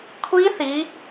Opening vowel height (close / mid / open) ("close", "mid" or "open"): close